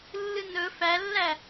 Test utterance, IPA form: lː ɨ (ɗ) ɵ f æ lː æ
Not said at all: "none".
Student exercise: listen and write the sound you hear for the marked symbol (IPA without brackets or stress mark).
n